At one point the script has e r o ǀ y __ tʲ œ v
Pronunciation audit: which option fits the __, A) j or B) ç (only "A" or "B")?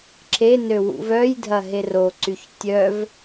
B